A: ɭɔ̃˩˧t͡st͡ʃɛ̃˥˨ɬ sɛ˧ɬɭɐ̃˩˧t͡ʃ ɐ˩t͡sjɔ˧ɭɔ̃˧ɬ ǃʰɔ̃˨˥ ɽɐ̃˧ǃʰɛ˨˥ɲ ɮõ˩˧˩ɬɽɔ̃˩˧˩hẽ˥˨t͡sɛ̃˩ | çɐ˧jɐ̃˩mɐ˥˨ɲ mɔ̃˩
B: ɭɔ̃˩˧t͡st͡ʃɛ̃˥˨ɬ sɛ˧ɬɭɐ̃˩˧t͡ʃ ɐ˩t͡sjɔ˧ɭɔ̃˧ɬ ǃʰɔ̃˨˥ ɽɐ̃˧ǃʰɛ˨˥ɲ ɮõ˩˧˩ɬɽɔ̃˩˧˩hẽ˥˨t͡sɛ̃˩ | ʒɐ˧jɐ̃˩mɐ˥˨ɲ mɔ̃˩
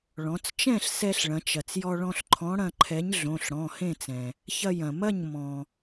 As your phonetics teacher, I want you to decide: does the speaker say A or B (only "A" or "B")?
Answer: A